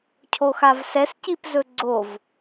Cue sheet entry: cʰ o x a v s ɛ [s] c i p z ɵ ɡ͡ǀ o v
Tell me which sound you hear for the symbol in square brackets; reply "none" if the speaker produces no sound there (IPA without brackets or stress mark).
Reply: s